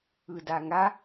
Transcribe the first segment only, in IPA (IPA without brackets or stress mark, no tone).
ɯ